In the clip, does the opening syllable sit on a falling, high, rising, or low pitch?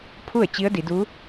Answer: falling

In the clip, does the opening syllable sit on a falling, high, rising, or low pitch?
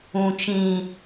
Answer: high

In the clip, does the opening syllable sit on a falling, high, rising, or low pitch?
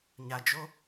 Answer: low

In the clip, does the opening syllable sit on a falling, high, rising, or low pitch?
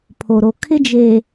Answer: low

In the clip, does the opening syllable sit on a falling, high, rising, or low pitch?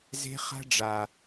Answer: high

